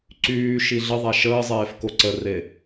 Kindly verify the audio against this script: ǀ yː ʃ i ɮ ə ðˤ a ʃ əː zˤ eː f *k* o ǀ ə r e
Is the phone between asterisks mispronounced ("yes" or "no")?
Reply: no